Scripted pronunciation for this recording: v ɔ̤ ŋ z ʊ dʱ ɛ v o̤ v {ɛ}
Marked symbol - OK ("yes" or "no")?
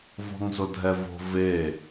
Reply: no